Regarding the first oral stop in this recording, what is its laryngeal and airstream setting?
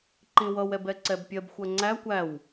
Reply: click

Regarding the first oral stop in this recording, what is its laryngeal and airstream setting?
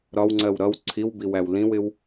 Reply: click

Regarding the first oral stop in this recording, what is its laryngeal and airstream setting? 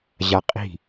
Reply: ejective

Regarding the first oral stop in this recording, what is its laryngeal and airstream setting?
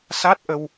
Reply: plain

